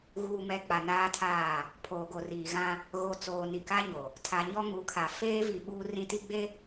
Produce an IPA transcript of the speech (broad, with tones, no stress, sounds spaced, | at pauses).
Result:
ɣ uː˨ m ɛ˨ k͡p a˨ n aː˦ tʰ aː˦˨ | pʰ oː˨ ɡ o˨ r iː˨ ɣ ã˦ | ɣ o˨ t͡s oː˨ n i˨ k a˦ ɲ o˨ | tʰ a˨ ɲ ɔ˦ ŋ u˨˦ kʰ a˨ f eː˦ v i˨ ɓ uː˦ r ĩ˦ t i˦ ɡ͡b e˦